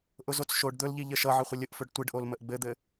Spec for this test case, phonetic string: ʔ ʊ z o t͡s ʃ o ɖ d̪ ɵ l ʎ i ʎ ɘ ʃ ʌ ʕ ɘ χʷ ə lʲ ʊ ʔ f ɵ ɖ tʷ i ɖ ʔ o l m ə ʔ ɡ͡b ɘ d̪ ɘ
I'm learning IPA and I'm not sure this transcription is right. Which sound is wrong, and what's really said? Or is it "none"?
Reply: none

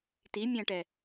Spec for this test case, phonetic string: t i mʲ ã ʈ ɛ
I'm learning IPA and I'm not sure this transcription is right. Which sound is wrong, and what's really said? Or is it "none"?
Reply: none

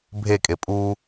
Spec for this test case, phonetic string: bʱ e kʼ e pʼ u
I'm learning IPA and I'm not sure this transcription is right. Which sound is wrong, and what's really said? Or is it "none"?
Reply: none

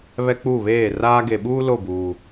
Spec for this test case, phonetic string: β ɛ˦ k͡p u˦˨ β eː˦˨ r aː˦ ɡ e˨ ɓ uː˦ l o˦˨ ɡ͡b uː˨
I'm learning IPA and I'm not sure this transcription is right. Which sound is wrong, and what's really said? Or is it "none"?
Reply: ɡ͡b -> b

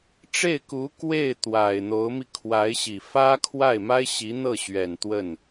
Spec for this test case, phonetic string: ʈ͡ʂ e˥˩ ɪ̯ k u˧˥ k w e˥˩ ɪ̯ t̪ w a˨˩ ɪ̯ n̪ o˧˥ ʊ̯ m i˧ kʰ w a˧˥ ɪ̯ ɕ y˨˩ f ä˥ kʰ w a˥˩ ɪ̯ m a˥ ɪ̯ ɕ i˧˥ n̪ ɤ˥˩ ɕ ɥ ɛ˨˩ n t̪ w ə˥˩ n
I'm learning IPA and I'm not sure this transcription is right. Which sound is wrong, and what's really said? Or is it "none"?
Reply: y˨˩ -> i˨˩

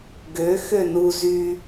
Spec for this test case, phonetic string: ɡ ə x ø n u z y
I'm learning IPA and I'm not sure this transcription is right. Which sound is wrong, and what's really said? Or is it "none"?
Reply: ə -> ø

